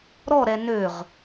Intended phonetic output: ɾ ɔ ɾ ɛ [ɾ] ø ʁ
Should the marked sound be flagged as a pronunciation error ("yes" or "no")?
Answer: yes